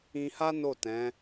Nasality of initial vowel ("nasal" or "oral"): nasal